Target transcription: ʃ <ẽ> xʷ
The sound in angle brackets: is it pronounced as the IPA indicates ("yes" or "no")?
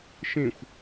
yes